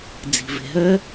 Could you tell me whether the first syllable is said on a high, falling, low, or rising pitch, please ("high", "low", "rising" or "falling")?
low